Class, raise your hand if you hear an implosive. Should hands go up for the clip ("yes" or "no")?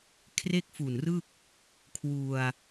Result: no